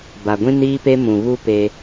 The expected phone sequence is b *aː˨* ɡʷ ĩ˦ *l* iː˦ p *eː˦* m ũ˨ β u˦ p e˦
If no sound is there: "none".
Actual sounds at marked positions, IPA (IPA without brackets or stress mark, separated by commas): a˨, n, e˦